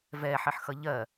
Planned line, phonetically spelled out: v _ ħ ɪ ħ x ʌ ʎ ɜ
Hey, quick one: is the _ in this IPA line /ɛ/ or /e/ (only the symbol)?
ɛ